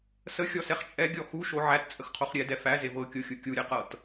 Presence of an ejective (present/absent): present